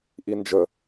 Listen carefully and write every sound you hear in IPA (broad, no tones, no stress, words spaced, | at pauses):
ʔind͡ʒə